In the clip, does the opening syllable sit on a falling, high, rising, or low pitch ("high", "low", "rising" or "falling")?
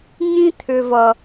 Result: high